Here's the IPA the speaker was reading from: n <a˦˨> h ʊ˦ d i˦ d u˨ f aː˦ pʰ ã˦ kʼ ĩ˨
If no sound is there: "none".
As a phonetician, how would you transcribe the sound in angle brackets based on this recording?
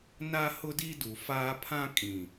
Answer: a˦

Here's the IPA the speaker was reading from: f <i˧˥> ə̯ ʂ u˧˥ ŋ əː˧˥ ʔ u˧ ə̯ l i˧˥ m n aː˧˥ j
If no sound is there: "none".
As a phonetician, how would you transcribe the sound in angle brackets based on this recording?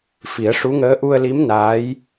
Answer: i˨˩˦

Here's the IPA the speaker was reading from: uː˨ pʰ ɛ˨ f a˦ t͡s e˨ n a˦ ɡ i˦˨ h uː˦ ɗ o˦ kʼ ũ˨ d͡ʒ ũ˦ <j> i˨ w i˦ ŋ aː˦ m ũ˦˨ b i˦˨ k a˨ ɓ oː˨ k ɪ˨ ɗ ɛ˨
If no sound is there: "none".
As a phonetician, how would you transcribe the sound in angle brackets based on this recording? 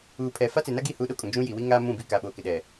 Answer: j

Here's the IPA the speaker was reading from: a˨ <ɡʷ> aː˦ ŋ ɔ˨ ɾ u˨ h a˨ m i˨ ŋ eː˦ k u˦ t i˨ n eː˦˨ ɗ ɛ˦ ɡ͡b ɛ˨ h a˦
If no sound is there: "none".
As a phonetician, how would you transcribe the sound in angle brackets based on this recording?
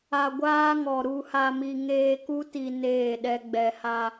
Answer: ɡʷ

